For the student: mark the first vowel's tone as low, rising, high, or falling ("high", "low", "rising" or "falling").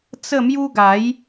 falling